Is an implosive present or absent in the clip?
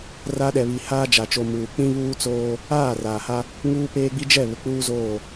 present